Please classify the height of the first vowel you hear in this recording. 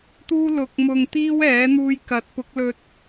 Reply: high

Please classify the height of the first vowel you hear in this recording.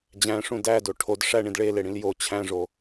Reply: low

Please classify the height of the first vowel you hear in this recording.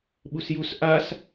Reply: high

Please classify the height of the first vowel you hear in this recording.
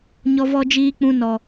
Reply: mid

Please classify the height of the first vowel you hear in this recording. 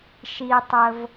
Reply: high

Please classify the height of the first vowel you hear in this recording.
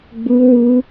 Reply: high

